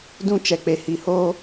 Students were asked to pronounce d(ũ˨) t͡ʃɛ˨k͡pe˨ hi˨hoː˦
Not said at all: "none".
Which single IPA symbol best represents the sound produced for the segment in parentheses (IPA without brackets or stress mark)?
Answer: ũ˦